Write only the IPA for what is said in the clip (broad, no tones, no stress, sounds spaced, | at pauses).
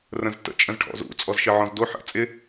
r ə̃ z t ə̰ t͡ʃʼ ə̃ z ʈʰ ɔ̰ z ṵ t͡sʼ ɔ z ʃ ɪ ʕ ɔ̃ z d o ħ ə̰ t͡sʼ ɪ